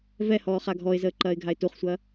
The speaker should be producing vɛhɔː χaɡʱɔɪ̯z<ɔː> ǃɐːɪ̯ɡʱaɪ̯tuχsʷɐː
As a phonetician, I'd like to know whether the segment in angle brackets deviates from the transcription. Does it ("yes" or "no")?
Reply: yes